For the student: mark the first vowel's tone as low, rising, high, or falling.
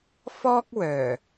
high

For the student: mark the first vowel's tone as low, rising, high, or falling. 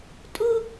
high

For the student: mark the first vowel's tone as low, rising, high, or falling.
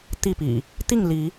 falling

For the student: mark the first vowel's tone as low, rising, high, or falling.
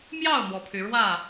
falling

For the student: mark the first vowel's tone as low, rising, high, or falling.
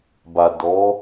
low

